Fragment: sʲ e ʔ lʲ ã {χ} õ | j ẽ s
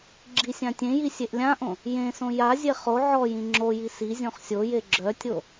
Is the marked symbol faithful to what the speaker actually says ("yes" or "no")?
no